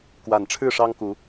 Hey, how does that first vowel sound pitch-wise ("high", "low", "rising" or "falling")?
low